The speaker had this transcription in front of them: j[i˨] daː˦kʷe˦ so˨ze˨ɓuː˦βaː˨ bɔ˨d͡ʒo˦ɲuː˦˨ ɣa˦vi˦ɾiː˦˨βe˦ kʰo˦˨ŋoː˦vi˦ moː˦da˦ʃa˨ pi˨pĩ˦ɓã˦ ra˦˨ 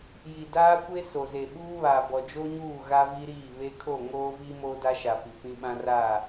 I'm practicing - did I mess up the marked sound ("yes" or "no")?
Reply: no